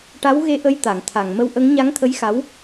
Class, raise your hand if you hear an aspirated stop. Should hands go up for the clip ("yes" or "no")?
yes